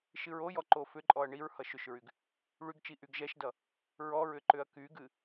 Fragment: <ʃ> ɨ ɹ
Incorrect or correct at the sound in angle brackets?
correct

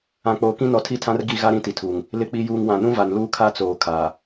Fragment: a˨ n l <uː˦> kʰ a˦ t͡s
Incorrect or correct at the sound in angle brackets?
correct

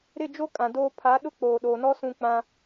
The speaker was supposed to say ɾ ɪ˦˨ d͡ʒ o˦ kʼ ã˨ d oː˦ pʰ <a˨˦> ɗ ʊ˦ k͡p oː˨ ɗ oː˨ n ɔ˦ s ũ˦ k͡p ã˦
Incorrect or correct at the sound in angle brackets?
correct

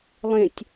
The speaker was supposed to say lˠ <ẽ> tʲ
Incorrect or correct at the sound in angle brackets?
correct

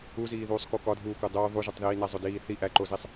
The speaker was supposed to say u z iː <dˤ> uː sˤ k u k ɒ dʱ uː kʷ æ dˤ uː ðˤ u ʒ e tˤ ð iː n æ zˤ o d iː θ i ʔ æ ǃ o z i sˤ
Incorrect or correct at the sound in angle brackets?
incorrect: ð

